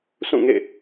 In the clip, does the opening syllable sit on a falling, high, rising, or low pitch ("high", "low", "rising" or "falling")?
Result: falling